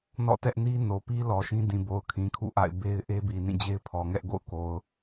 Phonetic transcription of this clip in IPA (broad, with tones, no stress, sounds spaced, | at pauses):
n ɔ̰˦˨ t ɛ˦ ʔ n i˦ n o˨ p i˦ l ɔ˨ ʃ ĩ˦ d ĩ˨ b o˨ ʊ̯ kʰ ĩ˨ kʰ ṵ˦˨ ʔ a̰˦˨ ɪ̯ b e˦ ɪ̯ ʔ e˦ b i˨ n ĩ˦˨ d͡ʑ e˦ ɪ̯ pʰ ɔ˨ ŋ ɛ˦ ʔ ɡ o̰˦˨ ʊ̯ k o˨ ʊ̯